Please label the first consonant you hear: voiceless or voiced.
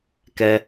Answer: voiceless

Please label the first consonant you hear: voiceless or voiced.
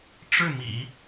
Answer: voiceless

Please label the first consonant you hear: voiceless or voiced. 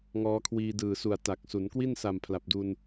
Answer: voiced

